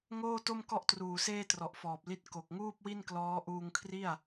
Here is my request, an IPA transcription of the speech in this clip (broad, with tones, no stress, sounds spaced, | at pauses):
ŋ oː˥˩ t o˥˩ m k ɔ˥˩ ʔ t r uː˨˩ s eː˥˩ t r ɔ˨˩ ʔ f ɔː˨˩ p̚ l i˥˩ t̚ k o˨˩ k̚ ŋ uː˥˩ p̚ w i˥˩ n k l ɔː˦˥ ʔ uː˧ ŋ kʰ r i˥˩ a̯